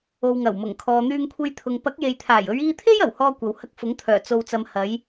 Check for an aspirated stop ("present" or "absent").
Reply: present